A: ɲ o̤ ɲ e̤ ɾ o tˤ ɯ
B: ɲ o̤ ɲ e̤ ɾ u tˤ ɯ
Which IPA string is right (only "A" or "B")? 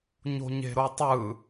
A